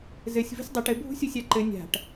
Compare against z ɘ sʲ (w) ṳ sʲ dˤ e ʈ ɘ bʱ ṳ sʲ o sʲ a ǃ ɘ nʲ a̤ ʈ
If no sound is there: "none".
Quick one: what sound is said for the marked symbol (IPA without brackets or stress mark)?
v